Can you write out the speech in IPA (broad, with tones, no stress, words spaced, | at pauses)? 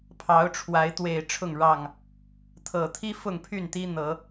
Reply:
pʰɑ˨˦ʊ̯ʈ͡ʂʰwa˨˦ɪ̯t̪we˨˩ɪ̯ ʈ͡ʂʰʊ˥˨ŋɻɑ˥˨ŋ | t̪ʰɤ˨˩t̪ʰi˦ fʊ˥˨ŋpʰy˥˨nt̪i˦n̪ɤ˨˦